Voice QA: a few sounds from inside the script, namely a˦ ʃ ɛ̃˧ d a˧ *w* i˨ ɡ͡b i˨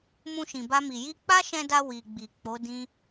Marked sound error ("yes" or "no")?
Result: no